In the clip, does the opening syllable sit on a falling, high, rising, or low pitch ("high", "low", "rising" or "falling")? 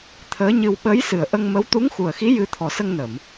rising